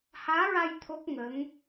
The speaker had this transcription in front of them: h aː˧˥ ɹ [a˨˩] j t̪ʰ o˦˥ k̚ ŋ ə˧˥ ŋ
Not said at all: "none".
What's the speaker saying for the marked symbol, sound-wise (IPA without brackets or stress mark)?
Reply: a˧